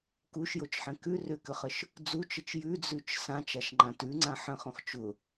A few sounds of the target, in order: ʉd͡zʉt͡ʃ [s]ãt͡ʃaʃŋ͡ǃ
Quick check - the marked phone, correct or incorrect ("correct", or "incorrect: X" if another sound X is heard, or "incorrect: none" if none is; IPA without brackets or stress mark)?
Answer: correct